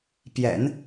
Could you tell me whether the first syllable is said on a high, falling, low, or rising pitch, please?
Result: low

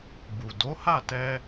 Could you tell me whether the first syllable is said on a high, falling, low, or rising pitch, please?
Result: low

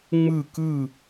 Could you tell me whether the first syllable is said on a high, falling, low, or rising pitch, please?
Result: falling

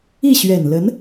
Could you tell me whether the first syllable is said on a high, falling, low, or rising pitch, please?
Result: falling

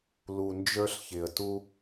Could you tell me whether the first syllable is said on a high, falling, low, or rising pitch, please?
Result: low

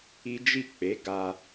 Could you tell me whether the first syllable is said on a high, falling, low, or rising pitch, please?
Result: high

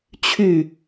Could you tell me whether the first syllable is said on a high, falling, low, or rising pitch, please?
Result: falling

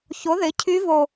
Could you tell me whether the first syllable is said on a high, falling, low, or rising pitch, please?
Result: rising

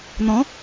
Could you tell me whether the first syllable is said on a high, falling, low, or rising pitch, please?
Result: rising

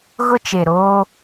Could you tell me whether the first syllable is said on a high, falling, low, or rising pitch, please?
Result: high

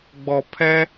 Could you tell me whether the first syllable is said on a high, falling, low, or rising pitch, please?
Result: low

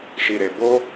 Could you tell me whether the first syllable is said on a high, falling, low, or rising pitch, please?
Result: low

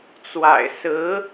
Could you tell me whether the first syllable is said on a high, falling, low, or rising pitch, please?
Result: low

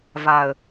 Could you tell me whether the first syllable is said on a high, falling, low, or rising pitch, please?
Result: low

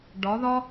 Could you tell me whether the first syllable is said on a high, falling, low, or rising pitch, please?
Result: rising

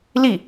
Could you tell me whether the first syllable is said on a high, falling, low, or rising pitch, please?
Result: falling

